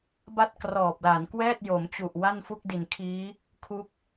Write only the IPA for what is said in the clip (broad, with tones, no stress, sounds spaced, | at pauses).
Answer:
b a˥˩ t̚ k r ɔː˨˩ p̚ l a˩˦ n k w ɛː˥˩ t̚ j o˩˦ m t͡ɕ u˨˩ ʔ w a˥˩ n f u˥˩ k̚ d i˨˩ n kʰ iː˦˥ | kʰ u˦˥ k̚